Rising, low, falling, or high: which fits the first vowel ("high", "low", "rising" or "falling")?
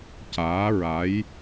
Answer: rising